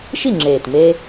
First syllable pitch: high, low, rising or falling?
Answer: falling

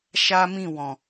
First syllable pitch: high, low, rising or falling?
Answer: high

